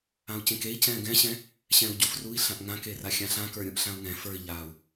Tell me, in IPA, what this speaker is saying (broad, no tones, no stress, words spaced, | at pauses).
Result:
ãu̯cẽkei̯ cɛ̃ːɡɛ̃ɕɛ̃ | ɕɛ̃u̯ɟufrui̯ɬãʔ ŋãkera xʲãɬãkə˞ɾʲũʔ ɬãu̯ŋɛ̃ fə˞i̯ʎaːu̯